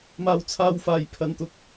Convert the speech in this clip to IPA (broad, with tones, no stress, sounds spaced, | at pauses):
m aː˧ w t͡sʰ aː˧ w f aː˨ j pʰ ɐ˨ n t̪ ʊ˨˥ k̚